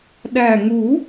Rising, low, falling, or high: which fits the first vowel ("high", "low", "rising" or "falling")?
low